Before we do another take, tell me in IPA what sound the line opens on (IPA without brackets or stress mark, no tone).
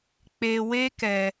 k͡p